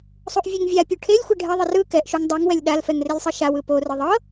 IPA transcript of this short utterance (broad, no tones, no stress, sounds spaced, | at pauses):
sˤ u ʔ vʲ ɛ ŋ vʲ a pʲ u ʈʰ e lʲ xʷ e ɖʱ ɛ ðˤ ɨ r ɯ k ɛ ʔ ʃ u ŋ dˤ u ŋ w ɛ lʲ ɗ a l f ɛ ŋ r e lʲ sˤ ɤ ʃ a w ɯ p o r ɯ ðˤ ɤ